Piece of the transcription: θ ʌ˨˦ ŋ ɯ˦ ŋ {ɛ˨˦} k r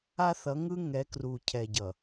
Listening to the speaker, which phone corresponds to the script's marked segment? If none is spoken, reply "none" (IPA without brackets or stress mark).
ɛ˨˦